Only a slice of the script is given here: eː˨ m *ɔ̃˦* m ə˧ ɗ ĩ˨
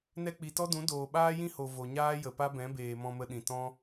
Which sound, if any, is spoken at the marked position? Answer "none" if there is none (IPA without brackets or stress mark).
ɔ̃˧